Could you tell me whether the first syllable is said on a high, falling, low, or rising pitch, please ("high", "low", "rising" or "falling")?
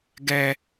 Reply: high